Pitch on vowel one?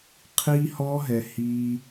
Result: high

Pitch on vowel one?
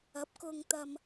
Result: rising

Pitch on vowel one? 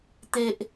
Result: high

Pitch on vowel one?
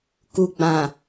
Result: low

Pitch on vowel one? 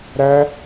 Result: high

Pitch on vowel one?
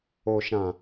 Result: low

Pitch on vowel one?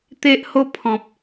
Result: high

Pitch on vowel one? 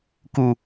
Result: low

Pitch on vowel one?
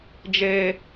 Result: high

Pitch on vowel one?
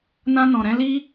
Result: high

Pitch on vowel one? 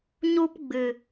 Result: high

